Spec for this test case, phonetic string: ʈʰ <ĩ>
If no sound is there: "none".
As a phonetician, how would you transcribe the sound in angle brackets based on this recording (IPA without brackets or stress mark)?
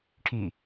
i